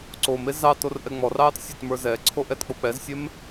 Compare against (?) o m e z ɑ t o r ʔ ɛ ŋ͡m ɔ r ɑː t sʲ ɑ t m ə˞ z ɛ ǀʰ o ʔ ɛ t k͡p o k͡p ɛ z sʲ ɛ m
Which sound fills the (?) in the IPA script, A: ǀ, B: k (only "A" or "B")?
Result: A